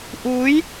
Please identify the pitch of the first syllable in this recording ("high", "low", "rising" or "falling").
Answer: rising